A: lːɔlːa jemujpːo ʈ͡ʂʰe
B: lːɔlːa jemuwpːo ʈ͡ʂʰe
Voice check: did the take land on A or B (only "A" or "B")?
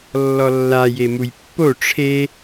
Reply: A